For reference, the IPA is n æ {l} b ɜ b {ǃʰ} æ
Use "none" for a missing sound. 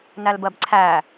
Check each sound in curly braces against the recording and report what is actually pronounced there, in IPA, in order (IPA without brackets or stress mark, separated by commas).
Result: l, ǀʰ